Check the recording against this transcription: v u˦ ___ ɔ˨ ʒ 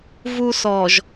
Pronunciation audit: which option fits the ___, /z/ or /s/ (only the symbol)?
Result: s